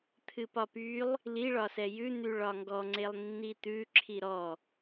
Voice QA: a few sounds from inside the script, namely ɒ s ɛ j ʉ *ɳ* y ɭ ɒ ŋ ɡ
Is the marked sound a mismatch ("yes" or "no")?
yes